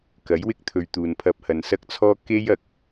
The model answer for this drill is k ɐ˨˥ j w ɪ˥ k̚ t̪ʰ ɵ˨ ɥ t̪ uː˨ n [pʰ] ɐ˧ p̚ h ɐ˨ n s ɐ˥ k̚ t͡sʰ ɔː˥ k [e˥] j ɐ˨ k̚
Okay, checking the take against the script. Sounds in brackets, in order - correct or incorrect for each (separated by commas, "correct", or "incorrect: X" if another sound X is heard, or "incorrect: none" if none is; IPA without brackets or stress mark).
correct, correct